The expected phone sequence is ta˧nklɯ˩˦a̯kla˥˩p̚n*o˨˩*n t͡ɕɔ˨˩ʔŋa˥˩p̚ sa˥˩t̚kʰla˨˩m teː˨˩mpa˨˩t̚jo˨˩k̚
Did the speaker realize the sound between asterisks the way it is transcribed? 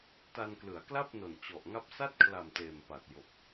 yes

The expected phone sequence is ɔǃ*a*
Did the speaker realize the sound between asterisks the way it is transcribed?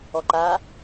yes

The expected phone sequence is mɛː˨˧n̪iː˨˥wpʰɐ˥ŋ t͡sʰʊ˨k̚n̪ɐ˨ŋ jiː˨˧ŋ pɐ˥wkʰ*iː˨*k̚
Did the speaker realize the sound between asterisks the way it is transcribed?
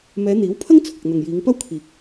yes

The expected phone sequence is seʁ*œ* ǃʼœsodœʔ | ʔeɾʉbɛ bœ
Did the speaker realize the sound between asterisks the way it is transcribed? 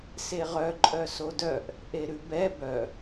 yes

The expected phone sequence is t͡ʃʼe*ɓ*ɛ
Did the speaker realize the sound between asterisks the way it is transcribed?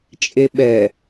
yes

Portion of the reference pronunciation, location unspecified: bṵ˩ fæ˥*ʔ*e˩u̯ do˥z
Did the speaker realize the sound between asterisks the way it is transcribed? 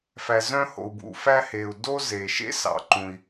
no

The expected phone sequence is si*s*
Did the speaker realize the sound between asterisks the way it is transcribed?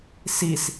yes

